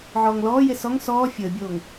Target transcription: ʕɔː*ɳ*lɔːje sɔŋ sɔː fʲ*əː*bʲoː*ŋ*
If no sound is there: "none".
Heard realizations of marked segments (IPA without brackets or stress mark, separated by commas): ŋ, əː, ŋ